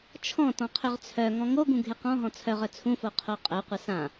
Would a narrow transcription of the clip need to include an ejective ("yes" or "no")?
yes